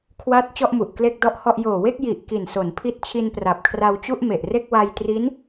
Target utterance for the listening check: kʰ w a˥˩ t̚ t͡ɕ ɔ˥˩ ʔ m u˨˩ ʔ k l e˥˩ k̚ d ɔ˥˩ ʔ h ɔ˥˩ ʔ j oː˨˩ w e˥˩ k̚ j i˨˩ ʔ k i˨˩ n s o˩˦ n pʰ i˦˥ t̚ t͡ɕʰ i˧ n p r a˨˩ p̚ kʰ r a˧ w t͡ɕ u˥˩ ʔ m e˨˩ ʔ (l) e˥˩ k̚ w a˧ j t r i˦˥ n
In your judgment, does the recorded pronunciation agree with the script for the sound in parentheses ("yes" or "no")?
no